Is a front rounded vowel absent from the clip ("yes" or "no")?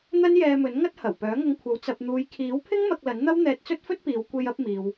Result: no